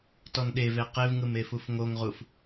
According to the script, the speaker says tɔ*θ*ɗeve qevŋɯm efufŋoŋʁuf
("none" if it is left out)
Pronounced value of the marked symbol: n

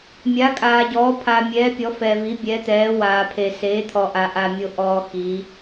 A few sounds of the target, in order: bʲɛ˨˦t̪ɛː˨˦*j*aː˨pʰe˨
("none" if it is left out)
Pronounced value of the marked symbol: w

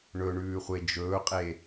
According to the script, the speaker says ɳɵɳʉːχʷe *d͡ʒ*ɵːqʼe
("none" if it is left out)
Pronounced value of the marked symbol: d͡ʒ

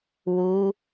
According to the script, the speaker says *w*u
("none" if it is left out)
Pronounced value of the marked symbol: w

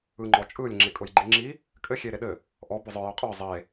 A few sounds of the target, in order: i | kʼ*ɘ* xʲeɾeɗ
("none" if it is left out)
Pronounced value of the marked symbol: ɘ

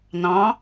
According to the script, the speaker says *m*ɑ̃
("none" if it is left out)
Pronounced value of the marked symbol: n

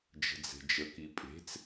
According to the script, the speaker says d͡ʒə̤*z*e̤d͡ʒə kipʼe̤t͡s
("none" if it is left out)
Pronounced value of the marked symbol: d͡z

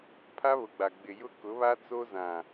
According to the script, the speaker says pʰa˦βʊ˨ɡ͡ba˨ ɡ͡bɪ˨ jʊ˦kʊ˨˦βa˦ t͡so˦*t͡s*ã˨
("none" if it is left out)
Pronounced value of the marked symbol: z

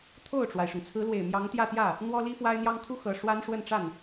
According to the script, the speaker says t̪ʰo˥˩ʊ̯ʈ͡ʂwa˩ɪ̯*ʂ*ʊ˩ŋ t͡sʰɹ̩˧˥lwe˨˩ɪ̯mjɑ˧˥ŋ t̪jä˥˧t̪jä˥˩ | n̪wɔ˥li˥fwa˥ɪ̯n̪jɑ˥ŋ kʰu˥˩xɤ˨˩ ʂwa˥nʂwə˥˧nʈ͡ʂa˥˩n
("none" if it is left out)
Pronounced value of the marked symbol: ʂ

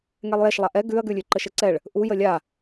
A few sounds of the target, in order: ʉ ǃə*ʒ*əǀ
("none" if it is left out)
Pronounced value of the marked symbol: ʃ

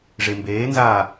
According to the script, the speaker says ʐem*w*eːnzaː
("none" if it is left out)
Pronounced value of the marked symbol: b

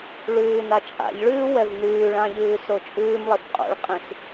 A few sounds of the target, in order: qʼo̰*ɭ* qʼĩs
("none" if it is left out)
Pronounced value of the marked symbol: ɭ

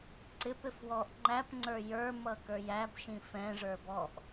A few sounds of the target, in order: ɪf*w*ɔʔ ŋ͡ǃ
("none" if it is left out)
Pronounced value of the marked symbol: w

